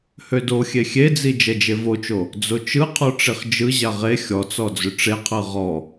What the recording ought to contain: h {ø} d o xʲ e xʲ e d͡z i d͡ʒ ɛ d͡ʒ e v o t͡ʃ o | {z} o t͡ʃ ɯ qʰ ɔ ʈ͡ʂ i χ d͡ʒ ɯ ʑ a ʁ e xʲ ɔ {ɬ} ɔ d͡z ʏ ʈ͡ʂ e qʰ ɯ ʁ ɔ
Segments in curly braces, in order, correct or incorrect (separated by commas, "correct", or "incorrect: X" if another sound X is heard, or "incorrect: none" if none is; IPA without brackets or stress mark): correct, incorrect: d͡z, incorrect: t͡s